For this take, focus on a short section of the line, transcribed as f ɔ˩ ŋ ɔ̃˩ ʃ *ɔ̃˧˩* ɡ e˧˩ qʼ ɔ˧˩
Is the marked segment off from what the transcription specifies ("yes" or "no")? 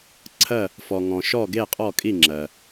yes